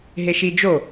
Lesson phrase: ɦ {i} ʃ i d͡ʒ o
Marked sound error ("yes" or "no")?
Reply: yes